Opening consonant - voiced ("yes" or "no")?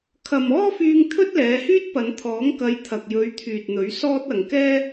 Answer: no